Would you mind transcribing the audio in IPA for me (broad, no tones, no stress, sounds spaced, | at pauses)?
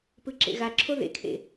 p ɯ ǁ ḛ ɣ a ǁʰ o ð ḛ kʰ ḛ